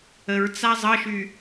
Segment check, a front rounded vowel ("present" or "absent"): present